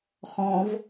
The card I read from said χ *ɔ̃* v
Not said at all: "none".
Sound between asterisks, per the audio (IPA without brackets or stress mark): ɔ̃